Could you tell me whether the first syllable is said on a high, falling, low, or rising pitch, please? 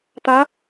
rising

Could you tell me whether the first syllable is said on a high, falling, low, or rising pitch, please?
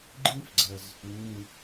high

